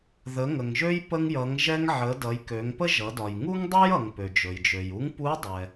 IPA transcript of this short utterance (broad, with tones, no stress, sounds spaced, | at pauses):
ð ə˩˧ ŋ ə˩ ŋ ʒ ø˧ j p ə˧ ŋ j ʌ˩˧ ŋ ʒ ɛ˧ ŋ ʕ ə˩˧ d ʌ˩˧ j k ø˩˧ ŋ p ə˥ ʒ ʌ˩˧ d ɒ˩ j ŋ u˥ ŋ dˤ ø˥ j ʌ˩ ŋ p ø˩ d͡ʒ ɵ˩ j d͡ʒ ø˩ j u˧˥ ŋ p u˧˥ dˤ ɛ˩